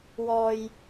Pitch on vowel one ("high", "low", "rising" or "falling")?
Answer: low